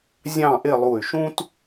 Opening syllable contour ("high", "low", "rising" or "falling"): falling